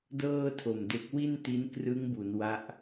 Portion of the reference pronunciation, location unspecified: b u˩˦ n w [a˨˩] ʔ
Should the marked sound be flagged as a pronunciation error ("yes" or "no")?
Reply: yes